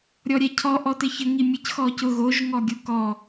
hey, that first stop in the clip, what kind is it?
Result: aspirated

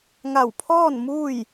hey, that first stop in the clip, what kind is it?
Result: aspirated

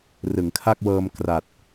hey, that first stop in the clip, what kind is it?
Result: aspirated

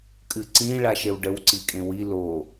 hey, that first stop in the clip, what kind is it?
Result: ejective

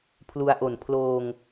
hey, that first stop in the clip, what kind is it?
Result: aspirated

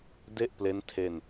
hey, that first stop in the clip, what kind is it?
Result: plain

